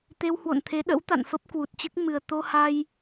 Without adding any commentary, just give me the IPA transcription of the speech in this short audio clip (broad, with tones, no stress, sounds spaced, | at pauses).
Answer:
t̪ e˧ w h w o̰˧˨ n t̪ʰ e˨˦ ɗ ə̰˧˥ w t̪ a̰˧˨ n f ə˦˥ p̚ k w u˨˩ t̚ t͡ɕ ɨ˦˥ k̚ m ɨ˨˩ ə̯ t̪ o˧ h a˧ j